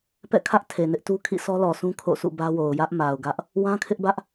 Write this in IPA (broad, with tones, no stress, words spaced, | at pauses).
pɛ̰˦˨kʰä˦ʔ tʰe˨nɪ˦ʔtu˦ kʰḭ˦˨sɔ˦lɔ˨sũ˦ kʰo̰˦˨sʰṵ˦˨bä˦wo˨ʊ̯ jä˦ʔma˨ʊ̯ɡä˦ʔ | wã˦kʰɪ˦ʔbä˦ʔ